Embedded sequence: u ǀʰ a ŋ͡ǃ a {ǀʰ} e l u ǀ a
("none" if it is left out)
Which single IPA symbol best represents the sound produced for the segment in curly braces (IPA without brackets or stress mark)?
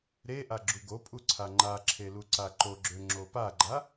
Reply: ǁʰ